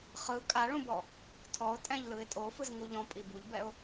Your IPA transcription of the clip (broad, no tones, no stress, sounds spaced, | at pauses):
χ ɯ kʼ a ɭ ũ b ɔ | tʰ ɔ ʊ̯ tʼ ɛ̃ ʎ l ɯ ɪ̯ tʼ o f ɯ z ŋ u ʎ ɔ̃ pʼ i b u ʎ b ɛ ʊ̯